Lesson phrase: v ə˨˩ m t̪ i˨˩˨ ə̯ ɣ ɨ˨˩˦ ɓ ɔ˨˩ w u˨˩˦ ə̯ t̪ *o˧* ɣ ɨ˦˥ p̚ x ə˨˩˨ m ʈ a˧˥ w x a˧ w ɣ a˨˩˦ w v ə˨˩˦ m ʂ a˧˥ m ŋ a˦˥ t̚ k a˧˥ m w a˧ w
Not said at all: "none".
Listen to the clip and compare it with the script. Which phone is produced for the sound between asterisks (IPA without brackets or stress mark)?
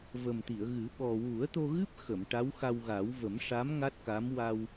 o˧